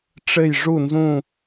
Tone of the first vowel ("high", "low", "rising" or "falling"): falling